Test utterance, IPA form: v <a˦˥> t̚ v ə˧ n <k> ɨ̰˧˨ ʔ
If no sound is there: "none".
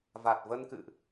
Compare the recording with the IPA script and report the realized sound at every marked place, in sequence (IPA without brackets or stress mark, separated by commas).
a˨˩, k